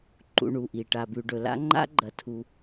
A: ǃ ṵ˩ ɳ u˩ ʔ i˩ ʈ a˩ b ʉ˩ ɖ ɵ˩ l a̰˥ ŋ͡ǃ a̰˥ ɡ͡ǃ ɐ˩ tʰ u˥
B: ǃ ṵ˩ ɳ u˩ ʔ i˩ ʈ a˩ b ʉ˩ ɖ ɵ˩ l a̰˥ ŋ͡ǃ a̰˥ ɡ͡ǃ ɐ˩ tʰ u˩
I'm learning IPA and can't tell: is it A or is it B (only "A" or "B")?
B